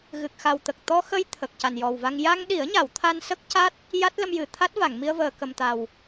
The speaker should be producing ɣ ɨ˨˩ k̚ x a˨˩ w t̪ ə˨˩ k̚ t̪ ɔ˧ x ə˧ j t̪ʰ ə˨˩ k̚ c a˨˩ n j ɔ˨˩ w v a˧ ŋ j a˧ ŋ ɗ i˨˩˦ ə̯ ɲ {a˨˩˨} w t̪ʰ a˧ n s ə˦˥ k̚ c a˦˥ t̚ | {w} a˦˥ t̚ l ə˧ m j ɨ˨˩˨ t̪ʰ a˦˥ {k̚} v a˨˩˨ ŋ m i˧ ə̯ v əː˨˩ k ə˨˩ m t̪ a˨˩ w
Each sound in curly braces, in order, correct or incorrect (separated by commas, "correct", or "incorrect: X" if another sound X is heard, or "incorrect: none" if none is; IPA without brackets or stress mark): correct, incorrect: j, incorrect: t̚